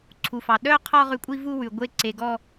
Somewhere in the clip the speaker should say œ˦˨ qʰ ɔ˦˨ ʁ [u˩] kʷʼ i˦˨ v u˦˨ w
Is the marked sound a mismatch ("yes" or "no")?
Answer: yes